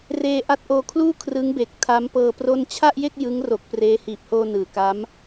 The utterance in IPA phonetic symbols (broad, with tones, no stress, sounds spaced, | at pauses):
r eː˧ ʔ a˦˥ t̚ ʔ oː˧ kʰ l uː˥˩ kʰ r ɯ˦˥ ŋ b e˨˩ k̚ tʰ a˦˥ m p ɤː˧ p r o˥˩ n t͡ɕʰ a˥˩ ʔ j e˥˩ k̚ j ɯ˦˥ ŋ r o˨˩ k̚ p r eː˦˥ h iː˨˩ p̚ h oː˧ n ɯː˩˦ k a˦˥ m